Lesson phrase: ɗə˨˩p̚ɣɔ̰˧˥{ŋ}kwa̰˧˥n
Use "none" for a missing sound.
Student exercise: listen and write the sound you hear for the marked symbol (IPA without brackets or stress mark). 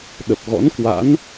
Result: n